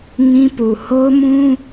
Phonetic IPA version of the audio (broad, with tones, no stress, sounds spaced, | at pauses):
ŋ ĩ˦ p u˨ h o˦ ʊ̯ m ũ˦